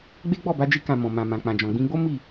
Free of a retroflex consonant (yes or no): yes